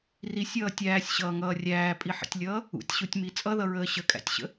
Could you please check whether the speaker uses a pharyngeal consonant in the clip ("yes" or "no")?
yes